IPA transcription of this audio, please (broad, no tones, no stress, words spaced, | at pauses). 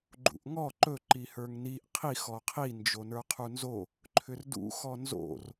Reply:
ɡ͡ǃṵʔŋɔ ǃɵ ǃihə˞ŋniʔ qʰix ɔqʰi nd͡ʒonə˞qʰunzo | ǃʰʏrdṵ xɔnzo̰r